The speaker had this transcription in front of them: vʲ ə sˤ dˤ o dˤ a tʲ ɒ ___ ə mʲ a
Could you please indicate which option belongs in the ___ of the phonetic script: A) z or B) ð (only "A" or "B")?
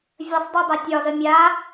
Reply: A